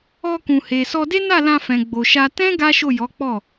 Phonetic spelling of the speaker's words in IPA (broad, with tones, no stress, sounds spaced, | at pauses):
ɔ˧ k ũ˨ h e˨ s ɔ˧ d e˦ n a˦˨ l ã˧ f ɛ̃˨ ɡ͡b o˨ ʃ a˧ t ɛ̃˦ ɡ a˦ ʃ o˦˨ j ɔ˨˦ k͡p ɔ˦˨